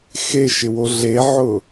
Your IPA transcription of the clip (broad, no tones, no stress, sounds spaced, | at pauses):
x e ʃ ɪ w o ɮ e ʕ ʊ